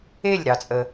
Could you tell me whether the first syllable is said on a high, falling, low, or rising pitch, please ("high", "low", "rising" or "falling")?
falling